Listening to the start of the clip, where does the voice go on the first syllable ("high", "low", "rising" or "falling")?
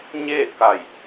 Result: falling